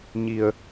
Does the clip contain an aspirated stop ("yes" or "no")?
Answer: no